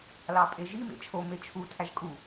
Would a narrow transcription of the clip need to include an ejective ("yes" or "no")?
yes